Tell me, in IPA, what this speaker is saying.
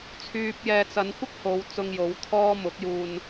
t͡sʰ yː˨ p̚ j ɛː˨ t͡s ɐ˨˧ n kʷ ɪ˥ k̚ h o˨˧ w t͡s ʊ˧ ŋ j o˨˥ w t̪ʰ ɔː˥ m ʊ˨˥ k̚ j uː˧ n

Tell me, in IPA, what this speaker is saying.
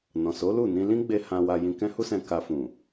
n ɔ̃˨ s o˨˦ l u˦˨ n ĩ˧ l ĩ˦ ɡ͡b e˧ h ã˧ w a˧ j ĩ˧ k ɛ̃˦ h u˦ s ɛ̃˧ k a˧ f ũ˨

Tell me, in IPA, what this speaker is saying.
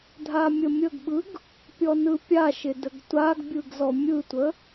dʱ a mʲ ə mʲ ə ɡ ɓ ɯ ɡ | pʲ ɔ n ɯ pʲ a ʃ ɪ d ə ɡ tʷ a ɡ bʲ ɯ ɡ z ɔ mʲ ɯ tʷ ə

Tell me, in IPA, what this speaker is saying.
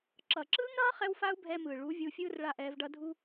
ǁ ʌ˨ ǁ ɯː˦ ŋ ɾ ʌː˦ χ ɛ˦ w f a˦ u̯ bʱ ɛ˧ m ɯː˨ ɭ u˨˦ vʲ u˧ fʲ ɯː˦ r ɭ a˦˨ ʔ ɛː˧ v ɖ ʌ˧ dʱ u˦

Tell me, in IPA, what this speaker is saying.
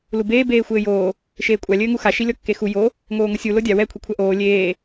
l u b eː b eː xʷ ɘː j oː | ʃ eː kʷʼ a lʲ ɘː ŋ u x a ʃ i lʲ ɔ kː e x u j o | ŋ oː ŋʷ ɘ sʲ u l o dʲ a w ɛ kʷʰ i kʷʰ ɛ ʔ oː lʲ eː

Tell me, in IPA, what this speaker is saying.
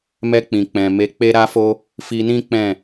m ɛ˧ k͡p ĩ˨ k͡p ɛ̃˨ m e˧ k͡p e˦ ɾ a˦ f o˦ | f i˧ n ĩ˦ k͡p ɛ̃˦˨

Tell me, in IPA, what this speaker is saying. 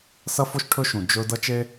s ɐ˥ f o˥ ʃ ʈʰ ɵ˥ ʃ ũ˩ d͡ʒ ɵ˥ d ɐ˥ t͡ʃ e˥

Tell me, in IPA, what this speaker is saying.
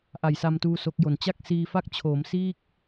ʔ a˨˩ j s a˧ m t uː˧ s o˦˥ k̚ j o˨˩ n t͡ɕ a˥˩ k̚ s iː˧ f a˥˩ k̚ t͡ɕʰ oː˩˦ m s iː˥˩ k̚

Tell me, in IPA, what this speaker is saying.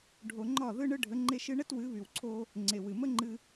ɖʱ o˧ ŋ͡ǃ ɒ˦˨ ð ɯ˦ ɳ ɯ˦ ɖʱ ə˨˦ ŋ͡ǃ e˦ ʃ ɨ˦ ɳ ə˦ t w ɨ˨˦ β y˨ w ǀʰ o˧ | ŋ͡ǀ e˨ w ɨ˨ m ə˦ ŋ͡ǃ ɨ˧

